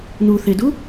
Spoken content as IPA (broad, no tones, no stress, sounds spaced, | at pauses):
n u θ e d u